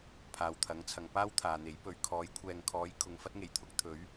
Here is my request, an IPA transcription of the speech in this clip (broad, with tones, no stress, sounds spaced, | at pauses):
pʰ aː˨ w t̪ʰ ɐ˨˥ ŋ t͡sʰ ɐ˨ ŋ p aː˥ w t̪ʰ aː˨ n̪ e˨˥ j p ɵ˨˧ ɥ kʰ ɔː˨˥ j kʷʰ ɛː˨ ŋ kʰ ɔː˨˥ j kʰ ʊ˨ ŋ f ɐ˥ t̚ ŋ e˨˩ j t̪ʰ ʊ˥ k̚ t̪ʰ ɵ˨˥ ɥ